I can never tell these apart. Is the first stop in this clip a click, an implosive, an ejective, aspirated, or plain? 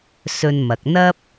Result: plain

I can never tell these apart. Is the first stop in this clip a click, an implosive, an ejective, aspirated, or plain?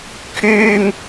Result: aspirated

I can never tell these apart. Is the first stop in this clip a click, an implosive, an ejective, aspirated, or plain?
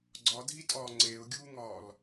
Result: click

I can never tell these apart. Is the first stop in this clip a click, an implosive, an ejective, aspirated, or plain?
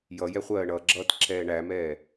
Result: click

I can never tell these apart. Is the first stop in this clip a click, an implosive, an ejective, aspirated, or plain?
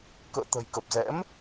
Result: plain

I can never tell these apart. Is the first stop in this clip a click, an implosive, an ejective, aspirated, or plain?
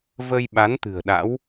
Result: implosive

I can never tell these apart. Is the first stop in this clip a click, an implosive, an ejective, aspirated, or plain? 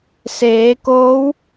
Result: plain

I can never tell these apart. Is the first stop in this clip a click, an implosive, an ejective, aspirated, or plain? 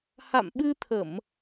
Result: implosive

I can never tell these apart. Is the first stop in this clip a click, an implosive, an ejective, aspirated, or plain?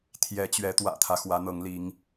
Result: aspirated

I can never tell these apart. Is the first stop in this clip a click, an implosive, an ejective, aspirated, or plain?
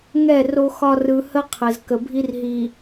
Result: aspirated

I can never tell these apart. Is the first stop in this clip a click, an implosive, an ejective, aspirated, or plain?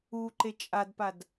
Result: click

